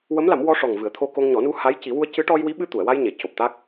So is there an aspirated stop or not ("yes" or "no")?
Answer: yes